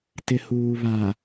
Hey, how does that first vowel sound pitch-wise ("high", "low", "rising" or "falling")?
low